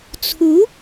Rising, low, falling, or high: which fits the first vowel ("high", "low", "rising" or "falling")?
rising